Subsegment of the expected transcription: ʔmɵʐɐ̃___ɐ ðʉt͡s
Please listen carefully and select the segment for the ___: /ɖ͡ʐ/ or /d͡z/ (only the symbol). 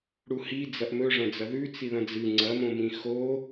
d͡z